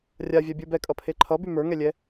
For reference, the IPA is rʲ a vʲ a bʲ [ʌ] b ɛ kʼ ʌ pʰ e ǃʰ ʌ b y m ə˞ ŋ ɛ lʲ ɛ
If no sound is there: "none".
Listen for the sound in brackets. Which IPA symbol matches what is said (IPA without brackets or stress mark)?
ə˞